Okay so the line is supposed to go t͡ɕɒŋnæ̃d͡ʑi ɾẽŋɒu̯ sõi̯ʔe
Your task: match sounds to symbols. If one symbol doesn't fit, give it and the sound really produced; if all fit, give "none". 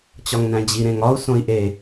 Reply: none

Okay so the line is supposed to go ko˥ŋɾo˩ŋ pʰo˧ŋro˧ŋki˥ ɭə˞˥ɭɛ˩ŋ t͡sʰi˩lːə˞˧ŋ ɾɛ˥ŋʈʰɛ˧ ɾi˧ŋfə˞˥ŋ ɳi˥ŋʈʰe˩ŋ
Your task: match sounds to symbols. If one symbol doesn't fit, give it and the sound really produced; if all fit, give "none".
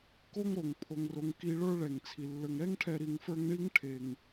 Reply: none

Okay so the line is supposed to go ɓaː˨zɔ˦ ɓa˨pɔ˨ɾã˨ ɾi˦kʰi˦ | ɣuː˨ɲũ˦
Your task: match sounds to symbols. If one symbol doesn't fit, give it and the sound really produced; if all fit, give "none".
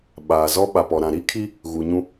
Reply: none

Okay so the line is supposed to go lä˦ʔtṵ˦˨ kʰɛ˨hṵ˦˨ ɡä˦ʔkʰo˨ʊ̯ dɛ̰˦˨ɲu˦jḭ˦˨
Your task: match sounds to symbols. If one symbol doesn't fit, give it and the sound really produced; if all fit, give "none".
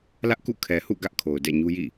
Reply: t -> k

